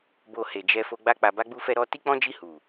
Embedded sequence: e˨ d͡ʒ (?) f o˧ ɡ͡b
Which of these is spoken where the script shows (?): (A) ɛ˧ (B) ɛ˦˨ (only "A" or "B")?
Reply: A